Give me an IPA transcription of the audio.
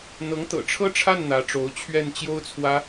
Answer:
n̪ ɤ˧˥ ŋ t̪ ɤ̰˨˩ ʈ͡ʂʰ ɤ˥˧ ʈ͡ʂʰ a˥˩ n n̪ ä˧˥ ʈ͡ʂ o˧˥ ʊ̯ t͡ɕʰ ɥ ɛ˥˩ n t͡ɕ j o˥ ʊ̯ t͡sʰ w ä˥

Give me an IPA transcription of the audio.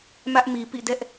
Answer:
m ä˦ ʔ m i˨ p ḭ˦˨ d ɛ˦ ʔ

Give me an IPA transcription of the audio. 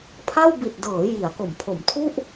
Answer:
pʰ a˥˩ w b i˨˩ t̚ d ɤː˩˦ j i˩˦ a̯ k o˩˦ m pʰ o˩˦ m tʰ u˥˩ ʔ

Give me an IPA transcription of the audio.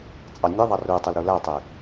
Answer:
t͡sʼ ɑ nʲ e ðˤ ɑ r u tˤ e l ɾ u l æ tˤ e

